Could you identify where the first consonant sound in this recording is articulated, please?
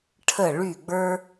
retroflex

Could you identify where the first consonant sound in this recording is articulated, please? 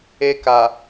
velar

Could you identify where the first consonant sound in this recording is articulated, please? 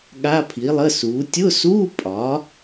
velar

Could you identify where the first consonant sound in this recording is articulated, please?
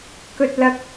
velar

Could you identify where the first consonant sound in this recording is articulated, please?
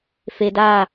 labial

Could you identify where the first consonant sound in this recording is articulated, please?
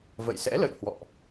labial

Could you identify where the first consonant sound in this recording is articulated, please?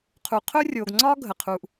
uvular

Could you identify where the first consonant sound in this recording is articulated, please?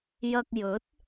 palatal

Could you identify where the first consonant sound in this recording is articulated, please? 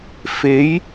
labial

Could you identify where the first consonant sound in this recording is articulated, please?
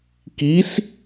velar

